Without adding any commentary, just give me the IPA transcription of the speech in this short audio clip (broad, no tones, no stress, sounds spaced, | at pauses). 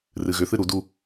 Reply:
r ɨ ɣ ʏ θ ɨ ɾ u d u